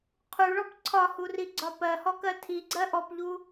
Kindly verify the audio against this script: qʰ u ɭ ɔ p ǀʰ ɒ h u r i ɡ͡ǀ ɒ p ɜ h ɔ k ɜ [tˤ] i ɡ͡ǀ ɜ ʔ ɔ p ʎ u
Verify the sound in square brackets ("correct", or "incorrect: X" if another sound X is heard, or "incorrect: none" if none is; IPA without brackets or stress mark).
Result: incorrect: tʰ